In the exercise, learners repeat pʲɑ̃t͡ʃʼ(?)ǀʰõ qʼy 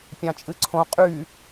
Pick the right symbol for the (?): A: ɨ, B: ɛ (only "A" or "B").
A